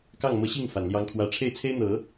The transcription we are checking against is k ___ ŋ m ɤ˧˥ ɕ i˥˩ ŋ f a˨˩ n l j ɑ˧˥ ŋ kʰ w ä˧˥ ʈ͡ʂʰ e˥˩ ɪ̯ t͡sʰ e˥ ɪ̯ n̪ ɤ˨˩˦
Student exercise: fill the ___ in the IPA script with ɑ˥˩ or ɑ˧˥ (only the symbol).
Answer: ɑ˥˩